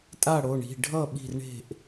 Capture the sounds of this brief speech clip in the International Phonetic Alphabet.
tʼa˥˩ɽo˩˧˩ɳi̤˩˧˩ ɖʱʌ˥˩ ɓi̤˥˩rɳe̤˥˩ʔ

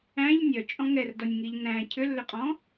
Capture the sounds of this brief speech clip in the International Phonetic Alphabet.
æ̃ʎ nʲœt͡ʃʼɔ̃ ŋɛrdɔnʲŋiʎ næ̃ cʰʏlːʏqʼɔ̃

